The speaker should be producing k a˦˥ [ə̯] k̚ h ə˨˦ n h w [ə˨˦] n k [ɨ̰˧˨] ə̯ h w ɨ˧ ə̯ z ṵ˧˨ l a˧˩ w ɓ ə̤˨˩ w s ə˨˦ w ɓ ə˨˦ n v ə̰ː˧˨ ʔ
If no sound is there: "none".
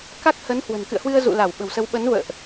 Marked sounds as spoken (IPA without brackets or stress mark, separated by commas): none, ə̤˨˩, ɨ̰˧˨